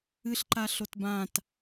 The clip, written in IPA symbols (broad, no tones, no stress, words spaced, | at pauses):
ɨɬǃa ɬotbãt